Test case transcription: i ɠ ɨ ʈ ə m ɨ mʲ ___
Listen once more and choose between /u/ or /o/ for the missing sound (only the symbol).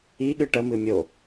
o